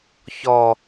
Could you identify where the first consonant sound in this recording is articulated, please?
palatal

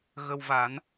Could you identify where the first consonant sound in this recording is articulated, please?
velar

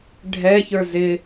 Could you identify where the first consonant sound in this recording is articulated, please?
retroflex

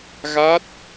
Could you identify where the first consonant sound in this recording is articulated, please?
velar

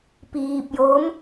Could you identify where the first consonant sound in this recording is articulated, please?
labial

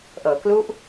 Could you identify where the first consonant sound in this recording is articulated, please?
glottal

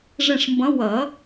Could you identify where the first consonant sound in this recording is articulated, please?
retroflex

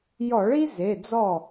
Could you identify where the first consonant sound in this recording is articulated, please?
palatal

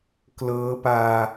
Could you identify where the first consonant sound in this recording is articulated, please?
velar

